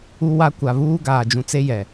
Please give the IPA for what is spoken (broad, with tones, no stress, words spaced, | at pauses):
u˦wa˦ kʷa˨ βuː˦ɡaː˨d͡ʒũ˨ t͡se˦jɛ˨